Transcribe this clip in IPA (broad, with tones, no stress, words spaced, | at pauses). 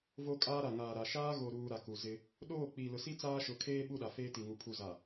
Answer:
vo˦kʼaː˦ɾa˨ ŋaː˨ɾa˨ ʃaː˦ɣo˨ɾuː˨ ɾa˨ku˨zɪ˦ | ɗoː˦˨ k͡piː˨lʊ˨si˦ t͡saː˦ʃʊ˨˦kʰeː˦ ɓu˦˨ɗa˨feː˦ ti˨ŋu˨ pʰu˨za˨